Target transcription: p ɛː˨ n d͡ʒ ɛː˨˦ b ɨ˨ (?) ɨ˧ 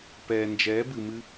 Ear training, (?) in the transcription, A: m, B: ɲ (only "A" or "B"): A